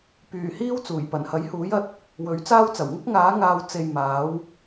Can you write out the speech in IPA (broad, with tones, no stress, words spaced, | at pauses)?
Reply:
pyː˨˩ hiː˥wt͡suː˨˩j pɐ˨˩nhɐ˨˥j huː˨˥jɐ˧t̚ | wɵ˨˥ɥt͡saː˥wt͡sɐ˨˩w ŋʊ˥k̚ŋaː˨˥ ŋaː˨w t͡se˨j maː˨˥w